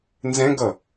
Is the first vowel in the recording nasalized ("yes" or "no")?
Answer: yes